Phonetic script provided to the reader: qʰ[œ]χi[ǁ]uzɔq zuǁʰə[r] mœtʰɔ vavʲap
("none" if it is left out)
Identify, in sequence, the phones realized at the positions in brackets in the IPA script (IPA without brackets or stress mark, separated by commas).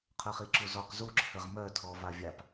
œ, ǁ, ʁ